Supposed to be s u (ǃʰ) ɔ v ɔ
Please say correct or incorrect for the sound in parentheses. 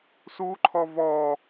correct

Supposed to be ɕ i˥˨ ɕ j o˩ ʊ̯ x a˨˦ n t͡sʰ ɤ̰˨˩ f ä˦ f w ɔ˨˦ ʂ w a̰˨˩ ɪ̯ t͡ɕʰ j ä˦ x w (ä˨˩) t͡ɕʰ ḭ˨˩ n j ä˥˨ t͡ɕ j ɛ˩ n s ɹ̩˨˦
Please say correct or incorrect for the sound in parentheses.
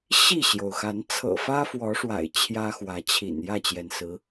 incorrect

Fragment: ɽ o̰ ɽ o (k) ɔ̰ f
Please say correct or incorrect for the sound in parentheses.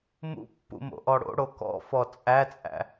correct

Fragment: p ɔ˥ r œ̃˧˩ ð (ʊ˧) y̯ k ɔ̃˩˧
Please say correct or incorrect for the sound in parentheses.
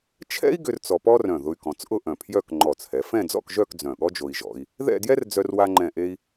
correct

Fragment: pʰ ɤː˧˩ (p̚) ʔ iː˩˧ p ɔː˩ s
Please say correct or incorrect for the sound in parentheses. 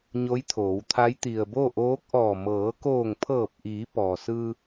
correct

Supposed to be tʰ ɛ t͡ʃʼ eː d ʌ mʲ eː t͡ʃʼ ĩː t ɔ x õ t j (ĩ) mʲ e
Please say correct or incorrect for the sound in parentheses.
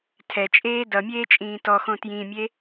correct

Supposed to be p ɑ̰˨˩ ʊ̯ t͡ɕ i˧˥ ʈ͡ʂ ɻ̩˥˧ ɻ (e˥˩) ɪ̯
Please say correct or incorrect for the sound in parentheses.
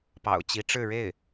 correct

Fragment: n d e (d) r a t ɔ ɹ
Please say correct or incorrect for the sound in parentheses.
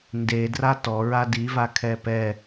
correct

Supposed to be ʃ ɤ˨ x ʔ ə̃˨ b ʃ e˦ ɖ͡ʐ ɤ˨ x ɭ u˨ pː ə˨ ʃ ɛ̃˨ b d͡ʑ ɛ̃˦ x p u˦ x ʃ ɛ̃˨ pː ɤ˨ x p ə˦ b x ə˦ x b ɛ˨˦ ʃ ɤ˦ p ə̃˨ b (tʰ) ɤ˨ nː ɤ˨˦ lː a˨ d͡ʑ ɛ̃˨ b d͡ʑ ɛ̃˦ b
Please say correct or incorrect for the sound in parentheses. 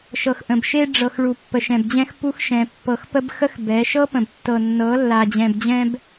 incorrect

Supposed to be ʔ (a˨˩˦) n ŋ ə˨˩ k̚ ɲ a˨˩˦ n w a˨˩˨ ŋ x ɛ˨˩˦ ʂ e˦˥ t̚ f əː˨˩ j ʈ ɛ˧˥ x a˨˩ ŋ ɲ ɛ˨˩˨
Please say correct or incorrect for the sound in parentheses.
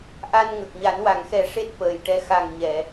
incorrect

